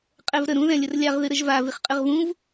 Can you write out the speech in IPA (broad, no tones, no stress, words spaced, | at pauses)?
qʼɛvɾə ɾũ ðɛ̃lʲərlʲaʁ ðɨɾəʒva viχqʼɨʁvũv